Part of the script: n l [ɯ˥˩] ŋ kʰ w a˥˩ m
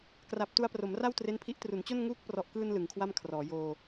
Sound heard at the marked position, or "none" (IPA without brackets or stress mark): ɯ˩˦